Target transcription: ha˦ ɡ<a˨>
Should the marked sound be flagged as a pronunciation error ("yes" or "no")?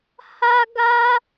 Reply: yes